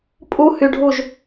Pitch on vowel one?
high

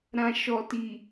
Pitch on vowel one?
low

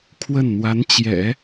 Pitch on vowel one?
falling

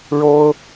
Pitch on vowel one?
high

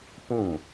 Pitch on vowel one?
falling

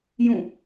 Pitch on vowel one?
falling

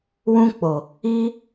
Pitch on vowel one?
high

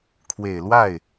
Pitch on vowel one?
low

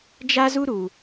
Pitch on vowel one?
high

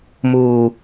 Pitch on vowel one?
low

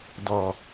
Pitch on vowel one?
low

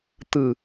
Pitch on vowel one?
low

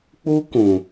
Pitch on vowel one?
high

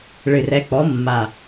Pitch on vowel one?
low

